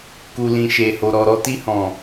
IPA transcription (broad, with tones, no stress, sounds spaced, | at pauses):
k u˨ l ĩ˨ ʃ e˨ h o˨ ɾ ɔ˨ ɾ ɔ˧ t i˧ h ɔ̃˨